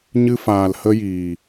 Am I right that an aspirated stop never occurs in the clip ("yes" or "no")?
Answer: yes